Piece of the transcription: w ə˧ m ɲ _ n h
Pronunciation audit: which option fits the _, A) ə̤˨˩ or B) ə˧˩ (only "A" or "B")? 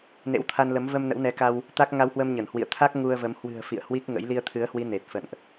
B